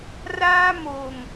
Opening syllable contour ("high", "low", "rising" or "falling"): high